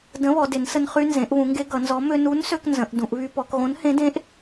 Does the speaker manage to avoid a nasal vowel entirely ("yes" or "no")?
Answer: no